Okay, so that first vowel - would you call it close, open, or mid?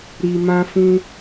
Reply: close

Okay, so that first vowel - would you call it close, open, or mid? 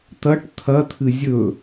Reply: open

